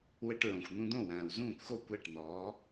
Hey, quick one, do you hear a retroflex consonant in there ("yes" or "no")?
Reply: yes